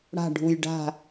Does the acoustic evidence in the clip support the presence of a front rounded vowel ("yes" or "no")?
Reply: no